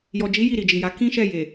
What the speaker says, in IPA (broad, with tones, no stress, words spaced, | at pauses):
jɔ˨d͡ʒi˨˦ ji˦˨ɾi˨d͡ʒi˨ja˨˦ kĩ˦ʃɛ˦˨ je˨